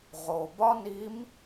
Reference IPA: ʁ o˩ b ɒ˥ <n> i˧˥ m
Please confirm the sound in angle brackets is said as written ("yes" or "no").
yes